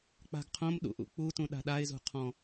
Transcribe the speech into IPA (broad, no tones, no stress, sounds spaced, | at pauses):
k͡p a̤ ɡ qʰ õ m ɗ ṵ ʔ ṵ k͡p u t ũ ɗ a̤ ɗ a ɪ̯ z ṳ qʰ ɔ̃